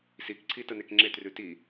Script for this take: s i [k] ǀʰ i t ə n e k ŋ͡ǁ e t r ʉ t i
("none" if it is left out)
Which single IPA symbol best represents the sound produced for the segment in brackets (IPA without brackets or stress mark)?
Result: k